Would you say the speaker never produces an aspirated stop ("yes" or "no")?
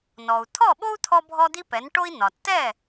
no